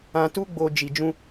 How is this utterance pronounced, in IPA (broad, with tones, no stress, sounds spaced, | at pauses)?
ã˧ t u˦ ɡ͡b o˧ d͡ʒ i˧ d͡ʒ ũ˧